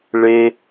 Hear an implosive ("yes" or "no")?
no